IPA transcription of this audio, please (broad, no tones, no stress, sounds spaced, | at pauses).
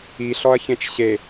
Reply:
i ɬ ɔ ɐ̯ ç ẽ t͡ʃ ɕ e